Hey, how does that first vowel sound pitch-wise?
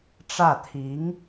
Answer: falling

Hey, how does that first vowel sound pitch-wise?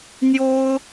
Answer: high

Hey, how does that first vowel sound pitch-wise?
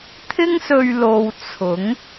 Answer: high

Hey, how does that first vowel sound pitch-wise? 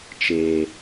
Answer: low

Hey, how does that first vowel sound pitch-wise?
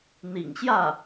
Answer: low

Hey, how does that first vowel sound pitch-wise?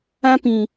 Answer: high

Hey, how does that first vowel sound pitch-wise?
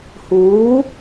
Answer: rising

